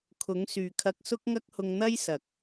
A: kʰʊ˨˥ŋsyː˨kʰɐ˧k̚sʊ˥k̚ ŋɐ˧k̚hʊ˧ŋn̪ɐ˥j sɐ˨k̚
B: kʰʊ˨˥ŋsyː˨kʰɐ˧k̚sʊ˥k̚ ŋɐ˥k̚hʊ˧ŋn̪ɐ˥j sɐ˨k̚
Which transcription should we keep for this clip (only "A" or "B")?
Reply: B